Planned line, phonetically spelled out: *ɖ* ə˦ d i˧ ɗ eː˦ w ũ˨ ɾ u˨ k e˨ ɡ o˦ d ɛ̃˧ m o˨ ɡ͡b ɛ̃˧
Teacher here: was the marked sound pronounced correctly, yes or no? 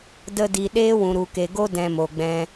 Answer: no